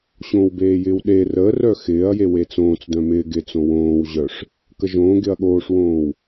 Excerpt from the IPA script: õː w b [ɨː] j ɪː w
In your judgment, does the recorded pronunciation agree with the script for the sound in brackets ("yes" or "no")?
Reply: no